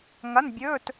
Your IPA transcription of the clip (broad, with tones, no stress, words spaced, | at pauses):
ŋɐ˧˥˧n bʲɵː˧˥˧t